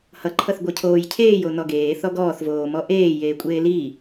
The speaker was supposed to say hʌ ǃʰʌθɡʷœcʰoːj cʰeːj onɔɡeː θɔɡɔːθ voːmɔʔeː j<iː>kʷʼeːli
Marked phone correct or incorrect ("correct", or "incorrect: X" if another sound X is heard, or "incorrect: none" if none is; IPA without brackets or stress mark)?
incorrect: eː